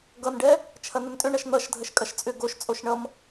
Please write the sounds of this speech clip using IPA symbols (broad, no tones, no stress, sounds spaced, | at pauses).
ɡ ʌ n ɖ ɛ | t͡ʃʰ ɐ n ə n tʼ ʏ ɳ ʌ ʃ n̪ ʌ ʃ dʱ ə ʃ kʼ ɐ ʃ t͡sʼ ʏ ɡ o ʃ t͡sʼ o ʃ ɳ ʌ m